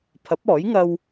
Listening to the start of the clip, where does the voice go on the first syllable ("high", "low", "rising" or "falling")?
rising